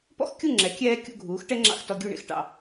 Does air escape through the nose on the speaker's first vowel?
no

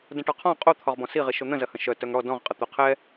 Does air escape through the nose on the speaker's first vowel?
yes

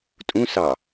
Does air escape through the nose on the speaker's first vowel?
yes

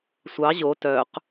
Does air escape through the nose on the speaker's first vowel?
no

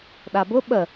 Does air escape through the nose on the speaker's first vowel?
no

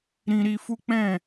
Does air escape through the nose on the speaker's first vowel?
yes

